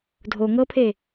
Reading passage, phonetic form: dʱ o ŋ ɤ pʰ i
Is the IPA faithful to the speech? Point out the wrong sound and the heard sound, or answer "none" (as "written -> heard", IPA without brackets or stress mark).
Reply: i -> e